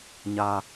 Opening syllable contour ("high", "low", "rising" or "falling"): high